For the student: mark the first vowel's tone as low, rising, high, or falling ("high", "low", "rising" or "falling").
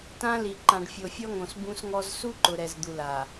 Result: high